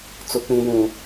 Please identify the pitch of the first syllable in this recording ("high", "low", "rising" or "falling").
high